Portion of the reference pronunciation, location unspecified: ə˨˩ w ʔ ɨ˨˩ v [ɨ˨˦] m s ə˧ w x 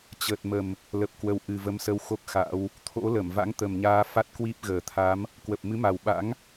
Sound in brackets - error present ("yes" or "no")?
yes